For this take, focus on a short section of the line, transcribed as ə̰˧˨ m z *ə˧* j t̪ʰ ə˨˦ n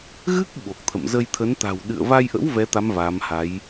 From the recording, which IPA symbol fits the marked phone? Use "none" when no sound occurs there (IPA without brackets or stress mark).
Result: ə˧